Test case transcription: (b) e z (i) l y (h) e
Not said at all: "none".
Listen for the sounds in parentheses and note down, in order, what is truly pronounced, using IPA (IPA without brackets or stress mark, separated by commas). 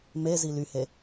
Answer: m, i, h